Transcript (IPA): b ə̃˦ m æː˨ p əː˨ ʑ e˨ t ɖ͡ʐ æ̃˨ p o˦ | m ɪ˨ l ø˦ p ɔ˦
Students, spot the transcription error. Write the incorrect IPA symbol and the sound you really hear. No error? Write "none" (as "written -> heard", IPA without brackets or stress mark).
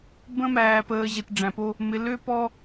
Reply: none